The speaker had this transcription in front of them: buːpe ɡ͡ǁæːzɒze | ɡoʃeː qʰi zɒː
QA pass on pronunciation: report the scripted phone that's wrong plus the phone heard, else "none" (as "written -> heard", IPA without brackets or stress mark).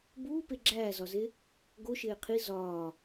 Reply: none